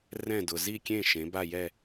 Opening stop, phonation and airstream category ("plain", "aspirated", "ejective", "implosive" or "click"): plain